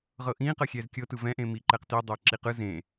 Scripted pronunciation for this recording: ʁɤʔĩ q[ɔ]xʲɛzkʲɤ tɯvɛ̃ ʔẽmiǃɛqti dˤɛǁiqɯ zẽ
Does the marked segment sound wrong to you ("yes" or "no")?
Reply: yes